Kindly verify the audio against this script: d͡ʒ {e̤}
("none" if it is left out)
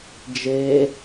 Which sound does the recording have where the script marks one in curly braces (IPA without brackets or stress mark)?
e